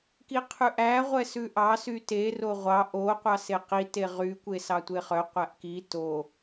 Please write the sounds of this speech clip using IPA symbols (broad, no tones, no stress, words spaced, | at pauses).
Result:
kiqʰʉʔæ ʁʷɛsʉʔɑ syte roʁʷɑ ʔo qʷɑseqi teʁy kʷesɑtʷeχœ qʷæʔki to